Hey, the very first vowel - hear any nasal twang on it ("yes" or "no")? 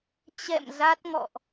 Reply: no